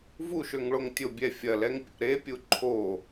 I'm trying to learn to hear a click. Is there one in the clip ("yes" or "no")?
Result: yes